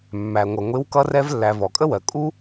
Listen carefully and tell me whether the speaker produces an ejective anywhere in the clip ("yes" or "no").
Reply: yes